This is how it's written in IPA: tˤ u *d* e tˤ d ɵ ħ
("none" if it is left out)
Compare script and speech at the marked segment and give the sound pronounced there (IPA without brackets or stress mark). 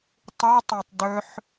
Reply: tˤ